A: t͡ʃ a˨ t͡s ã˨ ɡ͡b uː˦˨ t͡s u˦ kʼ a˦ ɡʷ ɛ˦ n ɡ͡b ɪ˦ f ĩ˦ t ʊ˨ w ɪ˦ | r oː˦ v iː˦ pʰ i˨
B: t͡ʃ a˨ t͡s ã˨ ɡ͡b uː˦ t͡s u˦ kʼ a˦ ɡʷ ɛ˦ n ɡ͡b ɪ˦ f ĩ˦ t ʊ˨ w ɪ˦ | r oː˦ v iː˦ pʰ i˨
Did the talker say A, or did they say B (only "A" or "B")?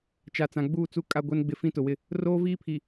A